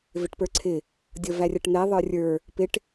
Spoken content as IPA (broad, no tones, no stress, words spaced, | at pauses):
vɪʈpə˞ǀʰɪ | dʲʌværʲʌʈn̪ɛ ðˤə˞rʲə˞ | pɪʈ